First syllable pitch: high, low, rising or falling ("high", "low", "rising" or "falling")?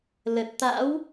low